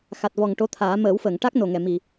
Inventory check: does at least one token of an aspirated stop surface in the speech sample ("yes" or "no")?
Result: yes